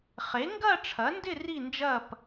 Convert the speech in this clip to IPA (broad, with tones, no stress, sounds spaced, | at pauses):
χ e˩˥ ŋ ɡ ɐː˥˧ ʈ͡ʂʰ ɐ˩˥ n d ɪ˥˧ r i˥˧ n d͡ʒ ɐː˥˧ p